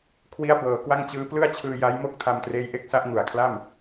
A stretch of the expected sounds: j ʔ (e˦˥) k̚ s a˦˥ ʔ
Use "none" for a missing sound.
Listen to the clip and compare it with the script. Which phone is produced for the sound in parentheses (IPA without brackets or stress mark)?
e˦˥